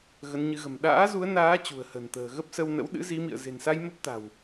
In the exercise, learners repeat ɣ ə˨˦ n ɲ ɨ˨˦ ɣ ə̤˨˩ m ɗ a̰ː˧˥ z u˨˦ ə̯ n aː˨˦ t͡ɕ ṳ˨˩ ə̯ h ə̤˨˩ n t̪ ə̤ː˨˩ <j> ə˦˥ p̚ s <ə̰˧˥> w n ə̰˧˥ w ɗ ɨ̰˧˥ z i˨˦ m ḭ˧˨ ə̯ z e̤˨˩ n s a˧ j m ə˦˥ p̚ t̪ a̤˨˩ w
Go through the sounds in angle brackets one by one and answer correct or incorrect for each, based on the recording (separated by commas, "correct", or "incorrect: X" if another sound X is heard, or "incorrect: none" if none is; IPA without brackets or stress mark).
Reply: incorrect: ɣ, incorrect: ə˧